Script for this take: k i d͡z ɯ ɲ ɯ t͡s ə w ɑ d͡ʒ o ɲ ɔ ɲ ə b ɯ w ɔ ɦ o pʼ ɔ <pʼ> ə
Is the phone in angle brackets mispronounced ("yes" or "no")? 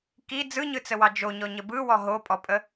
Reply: no